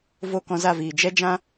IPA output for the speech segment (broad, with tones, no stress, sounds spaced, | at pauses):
v o˦˨ k ɔ̃˧ z a˦˨ v iː˨ d͡ʒ ɛ˦ d͡ʒ ã˦